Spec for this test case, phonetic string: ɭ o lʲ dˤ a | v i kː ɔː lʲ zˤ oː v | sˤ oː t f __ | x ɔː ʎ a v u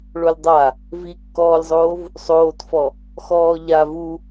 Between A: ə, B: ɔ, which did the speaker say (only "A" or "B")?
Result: B